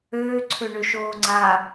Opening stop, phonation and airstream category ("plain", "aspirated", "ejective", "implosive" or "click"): click